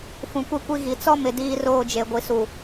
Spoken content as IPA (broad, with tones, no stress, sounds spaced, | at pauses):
f ũ˨ kʷ e˦ kʷ i˦ ɣ i˨ t͡s ɔ˦ m ɪ˨ d iː˦ r oː˦˨ d͡ʒ e˨ ɡʷ i˨ s u˨